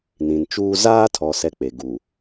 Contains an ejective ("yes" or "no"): no